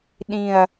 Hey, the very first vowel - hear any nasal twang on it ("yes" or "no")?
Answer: yes